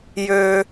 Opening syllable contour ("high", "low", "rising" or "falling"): high